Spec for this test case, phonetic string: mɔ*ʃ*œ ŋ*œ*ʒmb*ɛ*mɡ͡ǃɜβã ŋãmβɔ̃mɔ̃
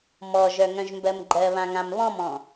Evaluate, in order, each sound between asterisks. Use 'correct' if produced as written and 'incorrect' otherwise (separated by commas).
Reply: incorrect, incorrect, incorrect